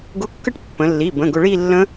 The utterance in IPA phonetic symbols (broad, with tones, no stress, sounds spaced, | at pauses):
ɡ ʊ˧˥˧ kː ə˥˧ ʈ pː ə̃˩˧ lː i˩˧˩ b ə̃˩˧˩ ɡ ʊ˧ ɭ i˥˧ lː ə̃˦˥